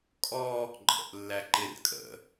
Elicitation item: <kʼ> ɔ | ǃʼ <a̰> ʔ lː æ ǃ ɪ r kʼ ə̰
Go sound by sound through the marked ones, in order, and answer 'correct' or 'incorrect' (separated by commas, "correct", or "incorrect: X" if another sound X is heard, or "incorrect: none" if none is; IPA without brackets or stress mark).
correct, incorrect: ə̰